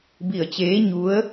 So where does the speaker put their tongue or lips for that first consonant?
lips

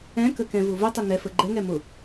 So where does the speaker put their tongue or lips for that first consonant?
velum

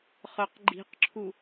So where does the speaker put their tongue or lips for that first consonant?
uvula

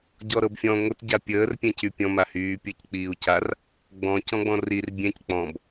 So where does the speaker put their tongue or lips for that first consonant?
palate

